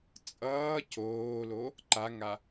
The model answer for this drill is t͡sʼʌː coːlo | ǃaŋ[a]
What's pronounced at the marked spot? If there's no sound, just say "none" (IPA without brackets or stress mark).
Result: a